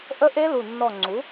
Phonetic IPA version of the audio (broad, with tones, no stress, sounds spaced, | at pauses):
ʔ ə˦˥ ʔ e˦˥ l u˧˩ nː ɔ˧˩ ŋ͡ǀ u˩˥